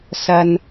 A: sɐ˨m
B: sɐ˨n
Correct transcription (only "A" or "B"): B